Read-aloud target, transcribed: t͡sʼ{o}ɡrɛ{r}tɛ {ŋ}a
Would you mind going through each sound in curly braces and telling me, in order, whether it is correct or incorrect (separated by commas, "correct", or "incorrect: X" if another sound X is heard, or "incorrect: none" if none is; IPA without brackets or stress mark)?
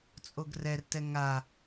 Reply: correct, correct, correct